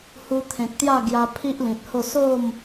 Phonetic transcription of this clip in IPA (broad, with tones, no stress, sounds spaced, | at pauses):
h u˧ t̪ʰ ẽ˨ k̚ t̪ j a˥˧ ɡ j a˧ pʰ i˦ ʔ l ĩ˨ t̚ h o˥˧ s o˥˧ m